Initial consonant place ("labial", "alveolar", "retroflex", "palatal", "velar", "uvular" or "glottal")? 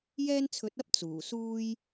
palatal